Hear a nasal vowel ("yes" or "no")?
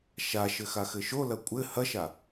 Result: no